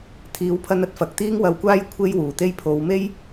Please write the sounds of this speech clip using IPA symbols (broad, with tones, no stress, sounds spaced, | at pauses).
t̪ʰ iː˨˥ w pʰ ɐ˧ n ɐ˨ t̚ f ɐ˨ k̚ t̪ iː˥ ŋ w ɐ˧ w kʷ aː˥ j kʷʰ e˥ j w uː˨˩ t̪ e˥ j pʰ o˨˧ w m e˥ j